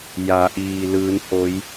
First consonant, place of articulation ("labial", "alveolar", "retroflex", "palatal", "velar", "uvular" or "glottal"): palatal